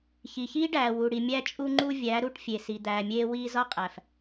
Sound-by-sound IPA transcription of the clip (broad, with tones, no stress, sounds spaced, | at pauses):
ç i˨ ç iː˦ ɖ æː˨ w u˨ ɽ i˨ mʲ æ˧ t͡ʃʼ u˧ ŋ͡ǃ u˧ vʲ æ˨˦ ɾ u˦˨ ʈ fʲ e˨ s i˨ d̪ æː˨ mʲ eː˧ w iː˧ z ɒ˦ qʼ æ˨ f